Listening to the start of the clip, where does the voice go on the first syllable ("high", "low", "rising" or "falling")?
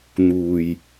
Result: low